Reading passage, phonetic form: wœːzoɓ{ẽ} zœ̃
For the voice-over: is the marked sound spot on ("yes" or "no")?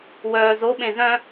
yes